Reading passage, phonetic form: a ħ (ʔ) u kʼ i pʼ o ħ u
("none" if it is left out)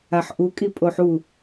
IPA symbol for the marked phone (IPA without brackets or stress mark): ʔ